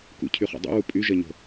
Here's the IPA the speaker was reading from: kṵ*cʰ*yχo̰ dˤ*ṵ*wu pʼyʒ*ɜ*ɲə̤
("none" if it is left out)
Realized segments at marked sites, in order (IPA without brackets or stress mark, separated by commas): cʰ, o̰, ɜ